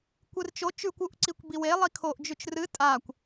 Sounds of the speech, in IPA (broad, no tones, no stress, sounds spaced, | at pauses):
kʷ ɨ r t͡ʃ o t͡ʃ ʉ kʷ u ʔ ǀ i kʷ b i w e lˠ i kʰ o ʔ d͡ʒ ʉ t͡ʃ r ɨ tʼ a kʷ